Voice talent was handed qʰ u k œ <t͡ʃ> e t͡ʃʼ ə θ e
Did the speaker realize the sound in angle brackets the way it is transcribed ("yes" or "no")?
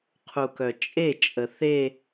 no